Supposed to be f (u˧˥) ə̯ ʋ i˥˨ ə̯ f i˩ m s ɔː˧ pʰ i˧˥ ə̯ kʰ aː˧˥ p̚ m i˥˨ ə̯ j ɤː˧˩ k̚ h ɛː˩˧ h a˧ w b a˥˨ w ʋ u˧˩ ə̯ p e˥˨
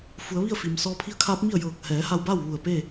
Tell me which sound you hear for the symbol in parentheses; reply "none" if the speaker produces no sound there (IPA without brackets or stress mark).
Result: u˩˧